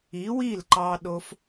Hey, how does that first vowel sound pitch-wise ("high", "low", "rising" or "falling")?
rising